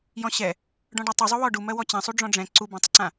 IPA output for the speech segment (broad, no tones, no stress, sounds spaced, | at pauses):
j ɔ̃ ɕ ɛ | ɖ ɔ̃ ɖ ɛ tˤ u zˤ u w ɔ ɖ u m ɜ w ɔ t͡ɕ ɛ̃ sˤ u ɖ͡ʐ ɔ̃ ɖ͡ʐ ɛ̃ ǀ u b ã tˤ ʊ ǀ ã